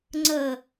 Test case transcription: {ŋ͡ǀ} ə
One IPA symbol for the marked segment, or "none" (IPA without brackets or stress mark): ŋ͡ǀ